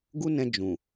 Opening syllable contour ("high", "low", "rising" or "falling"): high